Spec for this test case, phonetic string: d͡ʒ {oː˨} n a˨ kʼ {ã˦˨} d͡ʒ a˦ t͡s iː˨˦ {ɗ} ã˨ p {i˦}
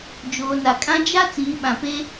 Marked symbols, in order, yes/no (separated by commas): yes, no, no, no